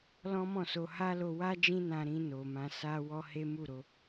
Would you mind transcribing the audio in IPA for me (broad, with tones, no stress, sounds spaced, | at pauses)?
l ɔ̃˦ m ɔ̃˦˨ s o˧ h a˦ l o˧ w a˦ d͡ʒ ĩ˦ n ã˧ ɾ ĩ˧ n o˨ m ã˧ s a˧ w ɔ˦ h e˦ m u˦˨ ɾ o˧